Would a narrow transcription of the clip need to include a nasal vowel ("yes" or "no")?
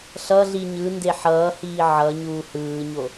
no